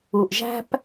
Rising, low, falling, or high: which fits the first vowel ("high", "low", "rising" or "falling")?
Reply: low